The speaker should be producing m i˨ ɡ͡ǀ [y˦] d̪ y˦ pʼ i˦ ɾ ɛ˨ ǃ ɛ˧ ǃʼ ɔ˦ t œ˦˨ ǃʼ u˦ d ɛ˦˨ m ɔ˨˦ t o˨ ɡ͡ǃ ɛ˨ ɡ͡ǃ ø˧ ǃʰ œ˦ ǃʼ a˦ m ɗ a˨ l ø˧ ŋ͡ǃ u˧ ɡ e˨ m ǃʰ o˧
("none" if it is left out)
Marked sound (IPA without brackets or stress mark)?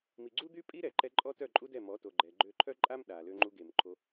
u˦